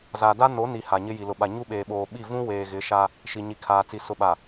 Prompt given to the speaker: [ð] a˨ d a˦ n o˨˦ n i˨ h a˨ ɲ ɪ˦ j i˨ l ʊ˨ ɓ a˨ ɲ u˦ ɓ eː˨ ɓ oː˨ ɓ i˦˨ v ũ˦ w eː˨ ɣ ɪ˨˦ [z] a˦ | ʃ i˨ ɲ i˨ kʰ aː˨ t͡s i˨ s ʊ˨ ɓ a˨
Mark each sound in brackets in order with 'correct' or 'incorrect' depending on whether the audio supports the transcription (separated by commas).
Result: incorrect, incorrect